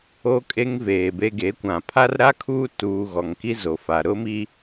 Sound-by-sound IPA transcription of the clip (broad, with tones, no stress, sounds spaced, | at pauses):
o˦ kʼ e˦ ŋ v eː˨ b e˦ ɡ e˨˦ kʷ ã˨ pʰ a˦ r ɾ a˦ kʰ uː˦ t uː˨ ɣ ɔ˨ ŋ k i˦ z o˨ f a˨ ɾ ʊ˦ m i˦